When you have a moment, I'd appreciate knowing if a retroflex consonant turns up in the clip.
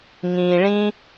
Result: yes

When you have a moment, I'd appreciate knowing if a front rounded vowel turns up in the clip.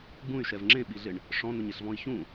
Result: yes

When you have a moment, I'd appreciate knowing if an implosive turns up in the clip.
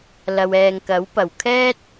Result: no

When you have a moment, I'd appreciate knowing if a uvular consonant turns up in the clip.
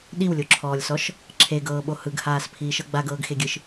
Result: no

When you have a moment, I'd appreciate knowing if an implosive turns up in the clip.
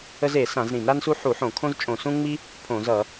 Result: no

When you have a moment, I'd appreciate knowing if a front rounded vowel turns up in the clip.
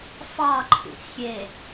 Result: no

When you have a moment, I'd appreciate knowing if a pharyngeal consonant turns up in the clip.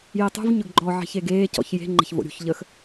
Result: yes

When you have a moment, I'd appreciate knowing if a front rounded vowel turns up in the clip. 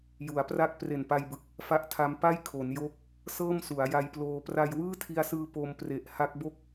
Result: no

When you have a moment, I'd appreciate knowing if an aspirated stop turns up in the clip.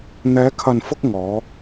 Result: yes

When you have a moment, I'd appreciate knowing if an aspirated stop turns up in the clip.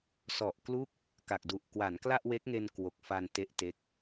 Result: no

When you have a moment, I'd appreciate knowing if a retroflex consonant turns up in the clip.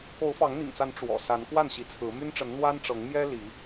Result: yes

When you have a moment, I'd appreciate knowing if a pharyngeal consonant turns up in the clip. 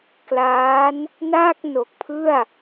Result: no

